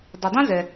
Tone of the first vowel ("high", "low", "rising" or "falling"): low